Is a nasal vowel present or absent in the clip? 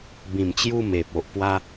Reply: present